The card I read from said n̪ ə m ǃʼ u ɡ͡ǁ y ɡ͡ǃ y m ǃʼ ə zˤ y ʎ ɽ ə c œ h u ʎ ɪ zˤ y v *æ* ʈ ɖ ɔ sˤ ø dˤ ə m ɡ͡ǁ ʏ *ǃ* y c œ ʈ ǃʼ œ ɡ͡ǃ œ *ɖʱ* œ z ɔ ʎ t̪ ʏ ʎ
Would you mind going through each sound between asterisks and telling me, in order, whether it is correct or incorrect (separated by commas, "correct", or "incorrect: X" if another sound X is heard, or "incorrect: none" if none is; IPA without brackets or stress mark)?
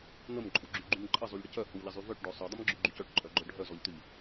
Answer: incorrect: œ, incorrect: ɡ͡ǃ, correct